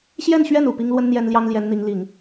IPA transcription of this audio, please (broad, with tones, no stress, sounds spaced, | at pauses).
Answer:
ɕ j ɛ˥˧ n ɕ ɥ ɛ˥˩ n u˨˩ p i˥ ŋ l w ə˥ n n̪ j ɛ˥ n l j ɑ˥ ŋ l j ɛ˧˥ n n̪ i˧˥ ŋ l i˨˩˦ ŋ